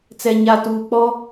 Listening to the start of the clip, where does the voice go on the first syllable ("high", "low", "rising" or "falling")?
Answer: low